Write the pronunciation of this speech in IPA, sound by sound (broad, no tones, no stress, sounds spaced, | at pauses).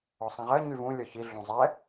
ɔ sˤ ĩ ʁ ɜ ɲ y v ũ lʲ ɔ ç i ɮ ũ zˤ ɛ